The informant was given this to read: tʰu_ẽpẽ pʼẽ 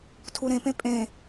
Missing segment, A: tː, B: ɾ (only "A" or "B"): B